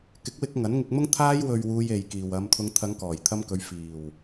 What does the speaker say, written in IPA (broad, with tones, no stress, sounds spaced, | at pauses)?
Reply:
k ɪ˨˥ k̚ w ɪ˧ k̚ ŋ ɐ˨˥ n ŋ ɪ˧ k̚ m ʊ˥ ŋ t̪ʰ aː˧ j w ɵ˨ ɥ w uː˧ j e˨ j k iː˨ w ɐ˨˧ m t̪ʰ ʊ˨˧ ŋ t̪ʰ ɐ˨˧ ŋ k ɔː˨˩ j t̪ʰ ɐ˧ m k ɵ˨˧ ɥ f iː˨˩ w